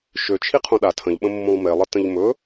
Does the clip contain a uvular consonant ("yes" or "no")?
yes